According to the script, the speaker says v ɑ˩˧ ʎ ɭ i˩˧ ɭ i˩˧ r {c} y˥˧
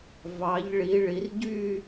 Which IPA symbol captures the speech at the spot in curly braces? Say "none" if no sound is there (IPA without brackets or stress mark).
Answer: ɟ